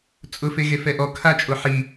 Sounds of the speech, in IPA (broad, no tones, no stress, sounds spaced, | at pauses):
t͡sʼ ʊ f e ɣ e f ɛ ʔ ɔ kʰ a t͡ʃʼ o ħ i